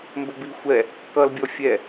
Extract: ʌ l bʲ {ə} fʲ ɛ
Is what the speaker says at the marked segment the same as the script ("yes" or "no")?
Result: no